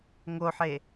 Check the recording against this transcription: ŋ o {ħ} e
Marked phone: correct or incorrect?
correct